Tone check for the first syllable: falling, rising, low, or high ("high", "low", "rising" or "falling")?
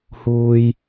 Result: high